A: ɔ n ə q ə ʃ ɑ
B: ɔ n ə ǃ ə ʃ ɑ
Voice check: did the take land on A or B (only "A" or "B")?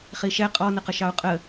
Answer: A